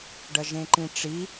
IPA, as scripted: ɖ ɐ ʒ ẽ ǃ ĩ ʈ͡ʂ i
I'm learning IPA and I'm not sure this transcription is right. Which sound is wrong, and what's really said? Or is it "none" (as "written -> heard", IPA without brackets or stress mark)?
none